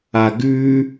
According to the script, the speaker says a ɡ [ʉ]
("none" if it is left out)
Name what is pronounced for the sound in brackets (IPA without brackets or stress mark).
ʉː